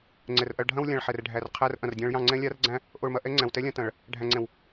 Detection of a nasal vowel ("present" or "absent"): present